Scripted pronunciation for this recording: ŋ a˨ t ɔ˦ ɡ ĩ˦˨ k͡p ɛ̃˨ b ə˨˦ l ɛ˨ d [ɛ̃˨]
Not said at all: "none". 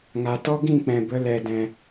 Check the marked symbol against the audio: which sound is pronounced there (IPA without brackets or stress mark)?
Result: ɛ̃˨